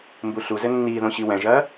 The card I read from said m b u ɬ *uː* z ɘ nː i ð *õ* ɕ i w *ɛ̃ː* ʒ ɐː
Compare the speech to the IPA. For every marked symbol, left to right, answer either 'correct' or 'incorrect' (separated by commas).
incorrect, correct, incorrect